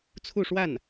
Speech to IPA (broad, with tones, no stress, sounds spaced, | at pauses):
t͡sʰ u˥˧ ʂ w a˥˩ n